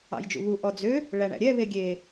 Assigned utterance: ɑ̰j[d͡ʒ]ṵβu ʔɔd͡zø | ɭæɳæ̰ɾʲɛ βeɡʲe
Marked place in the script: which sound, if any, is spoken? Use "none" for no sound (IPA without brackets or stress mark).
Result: d͡ʒ